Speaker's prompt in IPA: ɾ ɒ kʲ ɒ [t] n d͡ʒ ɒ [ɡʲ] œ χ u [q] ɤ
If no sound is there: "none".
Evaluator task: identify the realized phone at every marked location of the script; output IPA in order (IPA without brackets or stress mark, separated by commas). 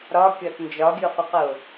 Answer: t, ɡʲ, q